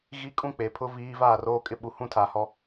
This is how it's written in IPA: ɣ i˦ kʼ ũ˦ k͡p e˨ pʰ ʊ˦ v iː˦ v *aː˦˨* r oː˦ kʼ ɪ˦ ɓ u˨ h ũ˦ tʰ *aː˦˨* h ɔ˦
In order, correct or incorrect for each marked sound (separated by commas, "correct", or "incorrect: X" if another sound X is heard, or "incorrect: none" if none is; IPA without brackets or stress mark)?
correct, incorrect: aː˨